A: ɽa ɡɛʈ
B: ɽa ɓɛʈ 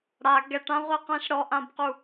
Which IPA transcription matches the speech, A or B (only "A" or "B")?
A